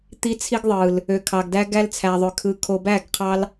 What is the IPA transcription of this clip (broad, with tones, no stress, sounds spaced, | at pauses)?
t̪ i˧ t͡sʰ i˦ ɡ ðˤ ɯ˨ l | ø˨ kʰ ɑ˨ ɡ d æ˧ ɡ æ˧ l t͡sʰ æ˨ ðˤ ø˨ kʰ ɯ˨ kʰ o˨ b æ˦˨ ɡ qʰ ɑ˧ l